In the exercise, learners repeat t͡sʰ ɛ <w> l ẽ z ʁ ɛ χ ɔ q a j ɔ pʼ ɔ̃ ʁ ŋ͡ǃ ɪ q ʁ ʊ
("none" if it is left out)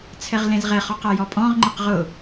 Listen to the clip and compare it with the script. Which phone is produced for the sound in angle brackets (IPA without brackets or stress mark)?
ʁ